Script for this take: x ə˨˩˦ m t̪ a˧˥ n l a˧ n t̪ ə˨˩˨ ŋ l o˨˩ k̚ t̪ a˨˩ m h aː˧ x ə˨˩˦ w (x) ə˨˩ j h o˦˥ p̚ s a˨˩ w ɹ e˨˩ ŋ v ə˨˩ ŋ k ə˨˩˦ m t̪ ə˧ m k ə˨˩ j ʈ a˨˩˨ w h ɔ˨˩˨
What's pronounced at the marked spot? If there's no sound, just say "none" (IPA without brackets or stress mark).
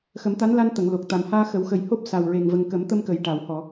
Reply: x